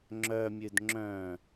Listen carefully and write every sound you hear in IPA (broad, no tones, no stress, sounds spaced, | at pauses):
ŋ͡ǁ œ mʲ ʉ d ŋ͡ǁ œ̃